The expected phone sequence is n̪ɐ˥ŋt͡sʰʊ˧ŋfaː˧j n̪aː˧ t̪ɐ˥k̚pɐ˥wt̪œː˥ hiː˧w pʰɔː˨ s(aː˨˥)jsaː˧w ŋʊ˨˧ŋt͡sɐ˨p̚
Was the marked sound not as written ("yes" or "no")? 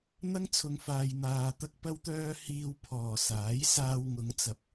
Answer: no